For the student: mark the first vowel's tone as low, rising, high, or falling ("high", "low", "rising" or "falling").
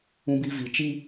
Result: high